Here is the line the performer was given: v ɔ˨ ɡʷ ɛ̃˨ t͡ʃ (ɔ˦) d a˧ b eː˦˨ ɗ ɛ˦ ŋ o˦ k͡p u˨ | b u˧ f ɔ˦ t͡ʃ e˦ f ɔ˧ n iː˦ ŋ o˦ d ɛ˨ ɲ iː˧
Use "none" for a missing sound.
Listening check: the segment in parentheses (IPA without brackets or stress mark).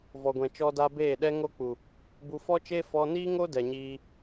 ɔ˧